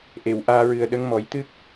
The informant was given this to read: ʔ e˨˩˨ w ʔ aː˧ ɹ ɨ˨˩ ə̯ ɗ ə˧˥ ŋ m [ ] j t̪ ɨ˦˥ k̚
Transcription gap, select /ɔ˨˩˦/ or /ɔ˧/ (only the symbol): ɔ˨˩˦